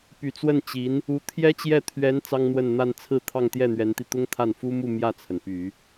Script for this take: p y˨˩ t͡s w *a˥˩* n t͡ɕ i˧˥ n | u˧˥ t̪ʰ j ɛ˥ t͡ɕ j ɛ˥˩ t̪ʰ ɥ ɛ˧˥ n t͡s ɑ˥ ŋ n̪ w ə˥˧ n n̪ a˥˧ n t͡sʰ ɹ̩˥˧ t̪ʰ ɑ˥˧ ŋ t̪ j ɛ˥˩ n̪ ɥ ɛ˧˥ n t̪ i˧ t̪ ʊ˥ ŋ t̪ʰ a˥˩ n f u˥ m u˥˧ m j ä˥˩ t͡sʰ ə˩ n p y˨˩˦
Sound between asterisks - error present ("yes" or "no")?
yes